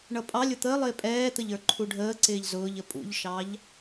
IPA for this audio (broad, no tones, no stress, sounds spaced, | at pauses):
ɳ ʌ pʼ ɑ lʲ ʊ t̪ ə lˠ ɪː pʼ ɛː t̪ ə ʎ ə˞ ǃʰ u ɖʱ əː ǀ ɪː ʎ z ʊː ʎ ə pʼ ṵ ʎ ʃ ɑ ʎ